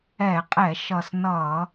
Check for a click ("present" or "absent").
absent